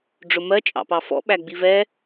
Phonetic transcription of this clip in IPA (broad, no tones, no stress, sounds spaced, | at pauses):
ɖ͡ʐ ʊ m ɜ t͡ʃʼ ɑ̰ p ɑ f ɔ̰ ɓ æ ɡ͡b i v ɛ